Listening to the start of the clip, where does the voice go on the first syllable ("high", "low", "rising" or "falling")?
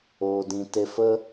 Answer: low